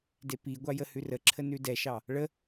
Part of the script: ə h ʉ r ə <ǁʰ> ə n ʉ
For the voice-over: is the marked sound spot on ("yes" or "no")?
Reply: yes